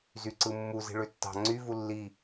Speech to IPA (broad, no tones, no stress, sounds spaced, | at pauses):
z y ǀ ɯ mː u z i̤ ɭ ø tː ɑ̤ ŋ͡ǀ y v u lː i